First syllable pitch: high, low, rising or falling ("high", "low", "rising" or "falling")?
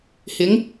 rising